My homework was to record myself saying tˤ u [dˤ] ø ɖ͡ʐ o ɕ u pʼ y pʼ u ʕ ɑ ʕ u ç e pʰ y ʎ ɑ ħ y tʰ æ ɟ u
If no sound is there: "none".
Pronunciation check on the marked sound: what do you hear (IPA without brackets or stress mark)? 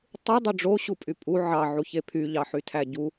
dˤ